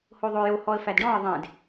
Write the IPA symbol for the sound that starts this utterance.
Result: h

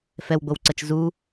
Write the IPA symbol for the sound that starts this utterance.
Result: f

